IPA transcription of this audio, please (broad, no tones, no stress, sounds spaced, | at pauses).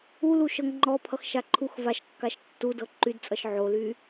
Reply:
u l u ʃ ɤ ŋ ŋ͡ǃ ɔ pʰ ʌ x ʃ a ǃʰ u x v a ʃ kː a ʃ tː u d ɤ ǃ y d t͡sʼ ʌ ʃ ʕ o l y